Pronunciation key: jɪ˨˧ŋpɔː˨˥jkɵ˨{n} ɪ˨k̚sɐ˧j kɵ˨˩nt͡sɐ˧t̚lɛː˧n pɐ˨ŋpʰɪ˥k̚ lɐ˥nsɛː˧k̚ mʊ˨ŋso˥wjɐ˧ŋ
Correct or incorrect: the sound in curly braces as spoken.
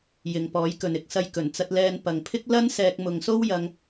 correct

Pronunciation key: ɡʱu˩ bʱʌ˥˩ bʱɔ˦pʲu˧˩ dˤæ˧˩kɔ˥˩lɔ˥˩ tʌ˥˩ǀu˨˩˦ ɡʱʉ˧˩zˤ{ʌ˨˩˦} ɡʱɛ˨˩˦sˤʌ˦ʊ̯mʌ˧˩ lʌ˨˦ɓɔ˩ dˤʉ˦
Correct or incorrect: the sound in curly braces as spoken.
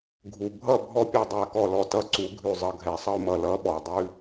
incorrect: ʌ˧˩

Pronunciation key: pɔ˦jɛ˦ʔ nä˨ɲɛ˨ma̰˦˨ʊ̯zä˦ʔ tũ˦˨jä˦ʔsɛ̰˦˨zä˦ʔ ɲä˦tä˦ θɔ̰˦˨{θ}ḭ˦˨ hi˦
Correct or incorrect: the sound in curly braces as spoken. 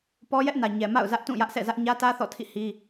incorrect: tʰ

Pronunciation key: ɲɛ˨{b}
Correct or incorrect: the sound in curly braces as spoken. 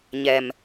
incorrect: m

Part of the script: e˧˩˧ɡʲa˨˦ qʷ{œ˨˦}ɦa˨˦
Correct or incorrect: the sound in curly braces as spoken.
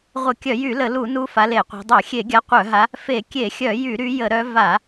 incorrect: œ˧˩˧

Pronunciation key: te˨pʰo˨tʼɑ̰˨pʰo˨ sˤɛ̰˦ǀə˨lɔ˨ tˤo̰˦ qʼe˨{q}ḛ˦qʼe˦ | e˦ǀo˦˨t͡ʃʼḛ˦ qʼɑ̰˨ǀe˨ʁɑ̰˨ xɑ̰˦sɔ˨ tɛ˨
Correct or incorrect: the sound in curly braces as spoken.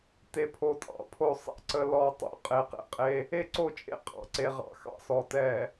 correct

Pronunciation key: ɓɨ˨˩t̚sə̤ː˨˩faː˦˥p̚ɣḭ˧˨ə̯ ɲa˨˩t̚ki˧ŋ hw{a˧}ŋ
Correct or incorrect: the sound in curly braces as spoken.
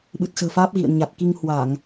incorrect: a˧˩˨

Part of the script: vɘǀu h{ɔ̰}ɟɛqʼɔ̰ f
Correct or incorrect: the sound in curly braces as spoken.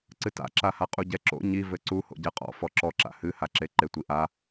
incorrect: o̰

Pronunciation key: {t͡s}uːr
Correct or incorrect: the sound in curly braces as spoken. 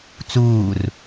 correct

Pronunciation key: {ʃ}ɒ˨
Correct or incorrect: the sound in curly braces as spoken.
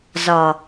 incorrect: z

